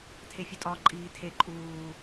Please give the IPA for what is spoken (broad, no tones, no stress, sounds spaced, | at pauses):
tʰ e fʲ u tʼ ɒ ǃʼ iː tʰ e ǃʼ uː